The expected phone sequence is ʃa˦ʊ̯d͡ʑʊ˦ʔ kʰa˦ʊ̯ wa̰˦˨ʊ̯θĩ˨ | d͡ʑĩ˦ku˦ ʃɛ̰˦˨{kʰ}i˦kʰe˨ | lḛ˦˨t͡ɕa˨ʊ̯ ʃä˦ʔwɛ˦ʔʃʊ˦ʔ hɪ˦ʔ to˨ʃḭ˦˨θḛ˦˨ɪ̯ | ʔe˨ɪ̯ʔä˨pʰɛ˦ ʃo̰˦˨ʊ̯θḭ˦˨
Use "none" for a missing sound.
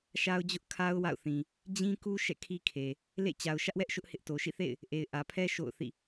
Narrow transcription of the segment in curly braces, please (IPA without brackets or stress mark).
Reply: kʰ